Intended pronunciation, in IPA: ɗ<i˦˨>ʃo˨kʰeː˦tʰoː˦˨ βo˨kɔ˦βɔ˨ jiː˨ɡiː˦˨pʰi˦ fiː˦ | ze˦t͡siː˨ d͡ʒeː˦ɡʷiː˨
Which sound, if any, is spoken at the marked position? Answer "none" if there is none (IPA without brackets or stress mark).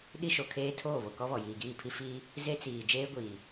i˦